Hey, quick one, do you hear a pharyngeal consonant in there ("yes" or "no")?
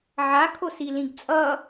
yes